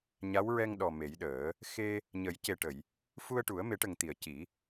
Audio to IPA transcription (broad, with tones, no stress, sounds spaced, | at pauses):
ɲ a˧˥ w ɹ ɛ˧ ŋ ɗ ɔ˨˩ m e˨˩˦ j ɗ əː˨˩˦ | x e˧ | ɲ ə˨˩˦ j c e˨˩ ʈ ə˨˩˨ j | f u˧ ə̯ ʈ u˨˩˦ ə̯ m e˨˩˦ ʈ ə˨˩ ŋ t̪ i˨˩˨ ə̯ c i˨˩˦